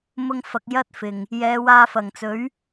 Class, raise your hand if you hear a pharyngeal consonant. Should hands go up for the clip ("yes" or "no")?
no